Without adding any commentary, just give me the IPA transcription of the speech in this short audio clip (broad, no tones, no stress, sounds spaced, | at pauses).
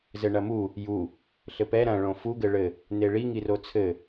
z ɘ ɳ ɐ m u | j u | ɬ ɘ p ɛ ɾ ɐ̃ ɭ õ f u ɡ ɘ ɭ ɘ | n e ɭ i ŋ i r o t͡sʰ ɘ